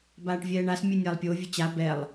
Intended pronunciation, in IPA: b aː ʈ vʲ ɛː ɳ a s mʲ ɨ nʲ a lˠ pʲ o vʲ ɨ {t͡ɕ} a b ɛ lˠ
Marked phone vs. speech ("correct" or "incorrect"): correct